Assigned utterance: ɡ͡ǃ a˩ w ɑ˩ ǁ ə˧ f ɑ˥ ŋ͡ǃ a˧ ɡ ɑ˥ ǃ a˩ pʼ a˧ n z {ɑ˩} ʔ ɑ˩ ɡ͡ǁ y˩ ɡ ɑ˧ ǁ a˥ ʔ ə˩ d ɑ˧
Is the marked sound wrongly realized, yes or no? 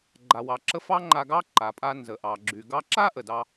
yes